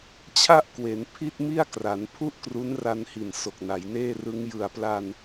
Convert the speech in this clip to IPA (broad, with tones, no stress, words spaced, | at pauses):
t͡ɕʰa˥˩ʔkwe˩˦n pʰi˥˩t̚mi˥˩a̯kra˩˦n pʰu˥˩ʔkru˦˥nra˧nhi˨˩n so˨˩k̚na˩˦jneː˥˩rɯ˦˥ŋ jɯ˨˩a̯pla˧n